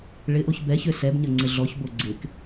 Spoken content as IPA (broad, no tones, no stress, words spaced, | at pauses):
ɭɪʔoç bɛçø sɛbɲɐ ŋ͡ǀɪɮɔçbo ɡ͡ǀɪk